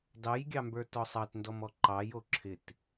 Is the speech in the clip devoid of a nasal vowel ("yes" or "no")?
yes